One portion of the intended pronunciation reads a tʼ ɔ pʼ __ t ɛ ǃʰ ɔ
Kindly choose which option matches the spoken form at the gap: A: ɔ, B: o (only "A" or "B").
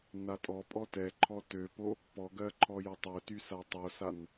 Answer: A